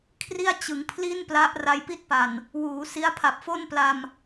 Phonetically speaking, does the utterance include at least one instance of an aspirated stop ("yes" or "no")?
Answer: yes